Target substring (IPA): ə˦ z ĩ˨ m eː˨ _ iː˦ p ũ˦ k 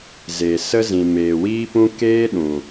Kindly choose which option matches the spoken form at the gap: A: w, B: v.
A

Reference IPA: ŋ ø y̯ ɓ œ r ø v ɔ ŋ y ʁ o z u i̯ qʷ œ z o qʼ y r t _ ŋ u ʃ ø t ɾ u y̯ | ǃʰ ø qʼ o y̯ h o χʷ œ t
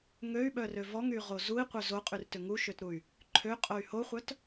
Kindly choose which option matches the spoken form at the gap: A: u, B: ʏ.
B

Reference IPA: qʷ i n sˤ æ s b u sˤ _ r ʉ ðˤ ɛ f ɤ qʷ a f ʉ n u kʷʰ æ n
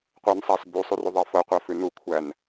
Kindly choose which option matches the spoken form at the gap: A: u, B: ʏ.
A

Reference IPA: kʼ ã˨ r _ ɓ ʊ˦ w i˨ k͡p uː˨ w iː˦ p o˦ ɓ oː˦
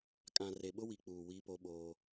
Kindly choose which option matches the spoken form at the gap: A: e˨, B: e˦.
A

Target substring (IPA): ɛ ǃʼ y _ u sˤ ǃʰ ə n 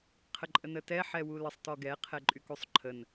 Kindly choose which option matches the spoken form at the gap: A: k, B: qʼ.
A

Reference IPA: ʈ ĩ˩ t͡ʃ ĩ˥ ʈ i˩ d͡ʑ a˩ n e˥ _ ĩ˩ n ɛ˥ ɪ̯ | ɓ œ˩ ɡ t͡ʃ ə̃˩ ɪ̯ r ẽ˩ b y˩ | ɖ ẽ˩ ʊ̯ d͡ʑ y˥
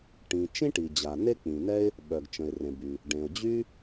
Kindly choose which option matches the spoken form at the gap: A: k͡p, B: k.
A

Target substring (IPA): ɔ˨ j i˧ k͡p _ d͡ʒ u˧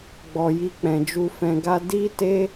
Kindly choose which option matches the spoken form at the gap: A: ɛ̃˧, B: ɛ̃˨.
B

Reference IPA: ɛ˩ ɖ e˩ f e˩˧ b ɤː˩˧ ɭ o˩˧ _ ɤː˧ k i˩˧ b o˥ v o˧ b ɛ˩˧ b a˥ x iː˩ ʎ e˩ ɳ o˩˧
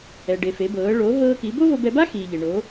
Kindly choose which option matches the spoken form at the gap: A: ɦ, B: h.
A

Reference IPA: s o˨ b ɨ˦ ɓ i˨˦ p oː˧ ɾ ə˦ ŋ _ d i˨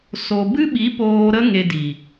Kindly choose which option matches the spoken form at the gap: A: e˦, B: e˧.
B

